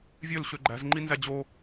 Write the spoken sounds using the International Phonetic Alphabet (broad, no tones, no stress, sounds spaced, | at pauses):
vʲ ø l ɕ ø ɡ͡ǃ æ̤ z ŋ͡ǃ i n z æ d͡ʑ o